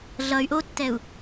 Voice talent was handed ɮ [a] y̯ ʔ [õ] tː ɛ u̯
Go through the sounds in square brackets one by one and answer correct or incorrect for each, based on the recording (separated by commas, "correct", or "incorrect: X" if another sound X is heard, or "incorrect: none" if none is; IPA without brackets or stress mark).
incorrect: ʌ, incorrect: o